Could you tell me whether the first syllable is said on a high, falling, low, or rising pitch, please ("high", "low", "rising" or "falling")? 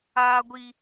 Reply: high